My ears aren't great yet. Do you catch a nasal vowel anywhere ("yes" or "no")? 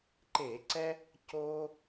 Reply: no